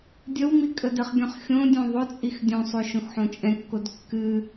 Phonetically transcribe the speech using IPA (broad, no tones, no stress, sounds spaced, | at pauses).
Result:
dʲ ə w m i kʼ ə d ə χ ɡʲ ɔ̃ χ xʲ õ dʲ õ ðˤ ʊ t͡sʼ i x dʲ õ sˤ o ʃ õ x ħ õ t͡ʃʼ ɛ̃ kː o d kː ɨ